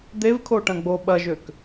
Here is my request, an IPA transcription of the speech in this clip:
d̪ev kʰoʈɐ̃ɡ͡bo ɓɐʒøk

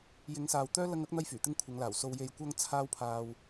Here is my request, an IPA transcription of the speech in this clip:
jɪ˨˧ŋsaː˨w t̪œː˥ lɐ˧ŋɐ˨˥k̚ n̪ɐ˥jfyː˨˩t̪ɪ˥ŋ kʷʰɐ˨˧ŋlaː˨˩w so˨wje˨j kʷɐ˧ŋ t͡sʰaː˥wpʰaː˧w

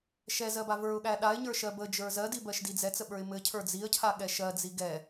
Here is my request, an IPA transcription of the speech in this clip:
ʃɛzɜba və˞ʊ̯ɠæ ɗaɪ̯ɲə˞ʃɜ bəd͡ʒə˞ zɜdibɜʃdi d͡zɛt͡səɓə˞ɪ̯ mɘcʰə˞ d͡ziə̯cʰaɠɛ ʃɜd͡zi ɡɛ

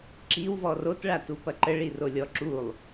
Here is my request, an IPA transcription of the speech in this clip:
ǁiwvɔ rotɭatupɐ ǃəɭirolʲɔ ǁulˠ

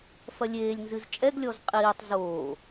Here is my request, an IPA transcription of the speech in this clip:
fɐlʲeːlʲnzɨz t͡ʃʼɛɡlʲɔz qʼiːtˤ zoː

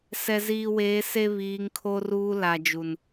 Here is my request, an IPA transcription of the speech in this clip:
sɛ˨ziː˨weː˨˦ se˦βiː˨˦ŋkʰo˦ruː˦ la˨d͡ʒu˨n

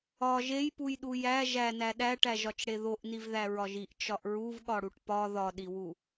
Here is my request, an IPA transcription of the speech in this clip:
ɒʒ ejpujɗu jæ ʒænæ ɗæʈæʒɒt͡ʃɽe ðoʔnivðæɹɒʒ iʔt͡ʃɒʔ ɹuvɠɒɽuʈ pɒ ðɒɗiwu

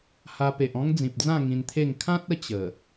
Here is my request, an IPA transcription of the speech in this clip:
ha˧ pe˨ʔɔ̃˦ŋd͡zĩ˨p̚d͡zã˥˧ ŋĩ˧nt̪ʰe˥˧ŋ kʰã˦t̚ə˥˧ t͡ɕə˨˩

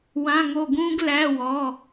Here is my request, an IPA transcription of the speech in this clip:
wã˧˥˧ŋo˦˨ɡũː˥ɡ læ˧˥˧ wɔ˩˧˩

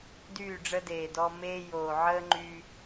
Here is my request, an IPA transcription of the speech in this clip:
dyː˦˨ɖ͡ʐə˦deː˨dɔ˦ meː˦joː˨ ʕəː˦ŋ͡ǃy˦

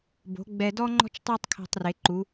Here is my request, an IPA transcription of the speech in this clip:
bo̤˩˧ ɡ͡bɛ˧dɔ˥ ŋ͡ǃɔ̤˥t͡ʃ tˤo˥tˤkʰɛ̤˧tˤre˩˧ǃu˩˧

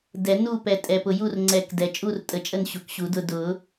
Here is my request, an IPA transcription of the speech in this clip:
dɛ˨˩˦ nu˦˨pɛ˨ tʼɛ˨pʊ˨ju˦˨rŋ͡ǀɛ˨˩˦k dɛ˨ t͡ʃʼu˦˨rtʼə˨˩˦t͡ʃʼə˦˨n ɕu˨kɕu˨˩˦dʊ˦˨ dʊ˨˩˦

